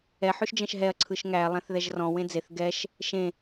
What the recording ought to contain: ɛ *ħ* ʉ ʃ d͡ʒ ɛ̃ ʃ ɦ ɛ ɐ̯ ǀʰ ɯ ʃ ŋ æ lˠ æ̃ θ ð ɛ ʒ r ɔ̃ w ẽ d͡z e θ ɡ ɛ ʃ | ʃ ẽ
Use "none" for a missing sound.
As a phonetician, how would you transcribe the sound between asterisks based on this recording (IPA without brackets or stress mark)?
ħ